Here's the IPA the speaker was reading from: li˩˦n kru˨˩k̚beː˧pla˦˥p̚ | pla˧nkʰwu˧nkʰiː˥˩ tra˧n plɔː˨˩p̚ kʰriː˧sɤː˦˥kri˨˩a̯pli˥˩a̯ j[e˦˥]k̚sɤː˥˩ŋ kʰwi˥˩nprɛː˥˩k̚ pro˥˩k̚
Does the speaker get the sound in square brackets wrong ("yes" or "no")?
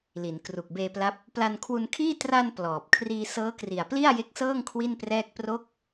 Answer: no